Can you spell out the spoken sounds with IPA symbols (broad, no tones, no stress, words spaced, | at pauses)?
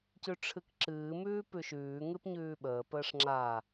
cʉʈ͡ʂʰɨkǁɨː mʉːpʉʃʉː ŋɨpɲʉːɓəː pəːʂŋ͡ǁa